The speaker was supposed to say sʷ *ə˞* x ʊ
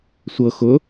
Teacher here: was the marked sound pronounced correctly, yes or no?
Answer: no